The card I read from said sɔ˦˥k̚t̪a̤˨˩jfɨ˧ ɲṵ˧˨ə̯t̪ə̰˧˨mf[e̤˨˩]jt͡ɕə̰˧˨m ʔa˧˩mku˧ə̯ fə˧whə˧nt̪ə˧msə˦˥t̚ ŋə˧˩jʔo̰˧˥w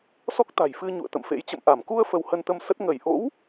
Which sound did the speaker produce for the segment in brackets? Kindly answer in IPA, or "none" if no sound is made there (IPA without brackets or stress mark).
ḛ˧˥